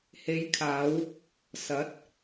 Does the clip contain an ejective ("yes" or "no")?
no